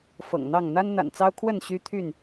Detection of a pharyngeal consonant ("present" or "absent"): absent